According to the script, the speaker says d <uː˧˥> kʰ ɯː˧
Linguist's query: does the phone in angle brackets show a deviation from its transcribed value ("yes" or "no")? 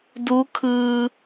no